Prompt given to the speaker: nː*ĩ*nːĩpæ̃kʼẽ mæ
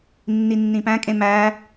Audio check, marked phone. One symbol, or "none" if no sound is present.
i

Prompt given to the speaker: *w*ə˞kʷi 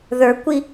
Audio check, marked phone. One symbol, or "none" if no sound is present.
ð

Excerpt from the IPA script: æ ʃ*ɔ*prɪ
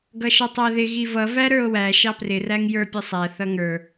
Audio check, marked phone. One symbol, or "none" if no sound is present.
ɑ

